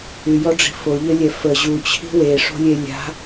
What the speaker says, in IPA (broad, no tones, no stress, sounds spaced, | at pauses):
y j ɔ ɖ͡ʐ i̤ f o ʎ ə lʲ ɛ f ə ʑ u t͡ɕʰ i̤ w e ʂ o̤ lʲ e lʲ a̤